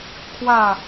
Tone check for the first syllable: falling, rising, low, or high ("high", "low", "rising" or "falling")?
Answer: falling